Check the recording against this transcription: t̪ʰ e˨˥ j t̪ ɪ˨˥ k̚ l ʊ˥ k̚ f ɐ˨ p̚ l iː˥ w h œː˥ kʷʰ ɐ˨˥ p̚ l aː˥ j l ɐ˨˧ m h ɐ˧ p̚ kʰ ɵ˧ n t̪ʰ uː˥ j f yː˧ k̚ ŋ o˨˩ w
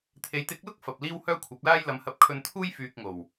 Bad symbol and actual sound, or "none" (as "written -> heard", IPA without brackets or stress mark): none